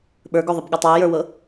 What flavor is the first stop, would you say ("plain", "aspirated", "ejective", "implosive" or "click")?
implosive